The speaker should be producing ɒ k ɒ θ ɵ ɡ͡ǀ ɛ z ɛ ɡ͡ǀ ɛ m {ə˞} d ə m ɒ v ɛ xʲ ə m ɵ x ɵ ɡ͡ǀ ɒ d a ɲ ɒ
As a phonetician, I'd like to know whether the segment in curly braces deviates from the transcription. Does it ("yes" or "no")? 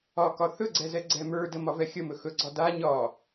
no